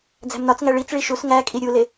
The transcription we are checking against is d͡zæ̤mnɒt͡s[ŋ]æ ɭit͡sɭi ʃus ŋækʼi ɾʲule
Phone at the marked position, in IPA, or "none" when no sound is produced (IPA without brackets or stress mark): ŋ